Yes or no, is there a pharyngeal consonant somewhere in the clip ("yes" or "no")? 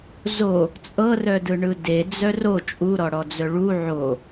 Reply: yes